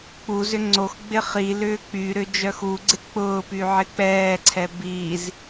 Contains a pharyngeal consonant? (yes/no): yes